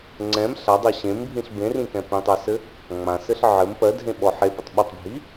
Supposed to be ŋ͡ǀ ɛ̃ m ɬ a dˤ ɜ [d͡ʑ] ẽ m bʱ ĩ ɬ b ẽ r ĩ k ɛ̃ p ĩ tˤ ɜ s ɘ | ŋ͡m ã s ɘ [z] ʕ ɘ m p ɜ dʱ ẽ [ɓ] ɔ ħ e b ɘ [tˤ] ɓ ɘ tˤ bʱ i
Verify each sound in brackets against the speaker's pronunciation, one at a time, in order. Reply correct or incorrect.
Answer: incorrect: ɕ, incorrect: ɬ, correct, correct

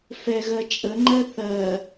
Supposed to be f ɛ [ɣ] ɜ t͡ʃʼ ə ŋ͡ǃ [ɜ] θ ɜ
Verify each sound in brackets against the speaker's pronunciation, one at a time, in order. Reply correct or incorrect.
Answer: correct, correct

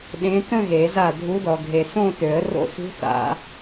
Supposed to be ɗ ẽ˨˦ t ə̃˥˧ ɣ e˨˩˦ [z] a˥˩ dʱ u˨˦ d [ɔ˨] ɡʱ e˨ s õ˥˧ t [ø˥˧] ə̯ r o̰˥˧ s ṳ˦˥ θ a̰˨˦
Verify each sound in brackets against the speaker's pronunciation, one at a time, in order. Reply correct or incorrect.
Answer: correct, correct, incorrect: ø˨˩˦

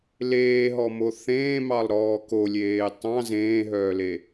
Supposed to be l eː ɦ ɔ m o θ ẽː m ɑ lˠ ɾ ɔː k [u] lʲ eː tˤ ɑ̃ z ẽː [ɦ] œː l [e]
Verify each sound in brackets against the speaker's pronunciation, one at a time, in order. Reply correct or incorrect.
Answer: incorrect: o, correct, correct

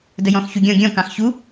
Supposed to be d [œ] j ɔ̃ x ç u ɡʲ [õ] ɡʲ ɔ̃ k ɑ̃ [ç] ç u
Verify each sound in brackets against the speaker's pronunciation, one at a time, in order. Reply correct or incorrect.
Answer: incorrect: ə, incorrect: ɔ̃, incorrect: x

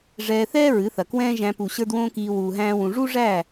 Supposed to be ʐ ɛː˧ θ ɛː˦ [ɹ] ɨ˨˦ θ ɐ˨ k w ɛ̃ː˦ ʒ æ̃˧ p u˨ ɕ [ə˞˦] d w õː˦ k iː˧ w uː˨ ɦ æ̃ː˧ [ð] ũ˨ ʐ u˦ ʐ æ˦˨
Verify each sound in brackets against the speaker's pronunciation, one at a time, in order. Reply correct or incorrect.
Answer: correct, correct, incorrect: w

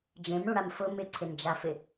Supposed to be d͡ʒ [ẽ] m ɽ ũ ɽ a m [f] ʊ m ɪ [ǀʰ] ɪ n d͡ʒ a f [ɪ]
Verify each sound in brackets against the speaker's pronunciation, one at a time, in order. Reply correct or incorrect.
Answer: correct, correct, correct, correct

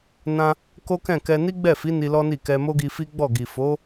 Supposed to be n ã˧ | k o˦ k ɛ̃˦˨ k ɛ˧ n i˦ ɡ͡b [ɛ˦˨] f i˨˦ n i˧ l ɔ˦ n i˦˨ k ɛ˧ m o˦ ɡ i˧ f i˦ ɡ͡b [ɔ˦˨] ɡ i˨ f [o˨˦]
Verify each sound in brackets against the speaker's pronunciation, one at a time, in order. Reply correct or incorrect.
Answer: correct, correct, correct

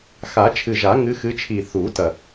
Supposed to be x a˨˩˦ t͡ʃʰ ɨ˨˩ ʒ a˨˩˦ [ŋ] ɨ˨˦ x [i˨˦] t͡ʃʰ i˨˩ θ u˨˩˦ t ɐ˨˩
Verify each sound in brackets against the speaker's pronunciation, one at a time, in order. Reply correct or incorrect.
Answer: correct, incorrect: ɨ˨˦

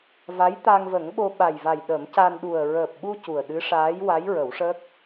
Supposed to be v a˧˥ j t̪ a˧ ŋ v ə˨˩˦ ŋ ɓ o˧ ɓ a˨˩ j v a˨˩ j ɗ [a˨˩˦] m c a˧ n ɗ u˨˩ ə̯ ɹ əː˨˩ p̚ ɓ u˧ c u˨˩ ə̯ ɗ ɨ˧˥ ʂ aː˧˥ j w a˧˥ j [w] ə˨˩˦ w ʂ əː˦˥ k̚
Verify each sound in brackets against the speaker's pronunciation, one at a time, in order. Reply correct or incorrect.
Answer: incorrect: ə˨˩˦, incorrect: ɹ

